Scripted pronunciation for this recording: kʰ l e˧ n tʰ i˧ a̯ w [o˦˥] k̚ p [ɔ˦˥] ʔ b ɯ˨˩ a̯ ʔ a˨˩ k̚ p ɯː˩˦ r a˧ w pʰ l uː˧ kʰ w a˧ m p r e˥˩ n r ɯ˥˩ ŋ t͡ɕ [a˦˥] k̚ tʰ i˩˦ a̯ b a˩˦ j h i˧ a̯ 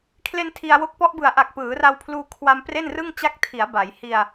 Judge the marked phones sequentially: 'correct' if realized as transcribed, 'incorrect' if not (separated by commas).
correct, correct, correct